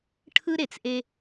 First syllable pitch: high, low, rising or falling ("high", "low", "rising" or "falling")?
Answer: high